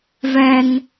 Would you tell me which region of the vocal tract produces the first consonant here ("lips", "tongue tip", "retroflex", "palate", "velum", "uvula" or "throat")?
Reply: lips